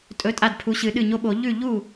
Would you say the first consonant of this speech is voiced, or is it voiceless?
voiceless